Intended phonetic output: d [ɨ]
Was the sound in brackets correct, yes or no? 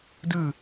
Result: yes